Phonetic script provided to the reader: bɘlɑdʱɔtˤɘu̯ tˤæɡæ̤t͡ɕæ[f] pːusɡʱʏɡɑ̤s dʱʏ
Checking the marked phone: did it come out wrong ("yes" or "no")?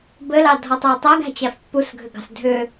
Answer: no